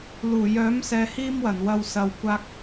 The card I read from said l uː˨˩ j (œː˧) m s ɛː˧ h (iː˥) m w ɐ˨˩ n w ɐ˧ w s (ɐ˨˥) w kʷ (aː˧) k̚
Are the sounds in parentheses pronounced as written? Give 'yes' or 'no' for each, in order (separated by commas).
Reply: no, yes, no, yes